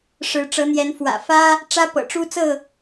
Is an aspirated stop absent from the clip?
yes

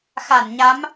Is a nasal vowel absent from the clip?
yes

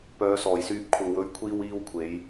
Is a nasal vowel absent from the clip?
yes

